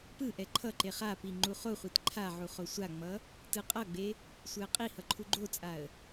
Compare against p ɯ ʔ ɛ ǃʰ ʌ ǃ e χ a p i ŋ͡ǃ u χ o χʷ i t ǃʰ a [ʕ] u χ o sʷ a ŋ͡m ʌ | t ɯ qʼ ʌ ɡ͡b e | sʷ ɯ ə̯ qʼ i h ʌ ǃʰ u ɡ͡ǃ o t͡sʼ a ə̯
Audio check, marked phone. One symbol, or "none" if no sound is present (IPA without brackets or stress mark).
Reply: ʕ